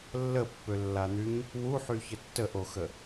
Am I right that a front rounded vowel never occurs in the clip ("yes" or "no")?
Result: no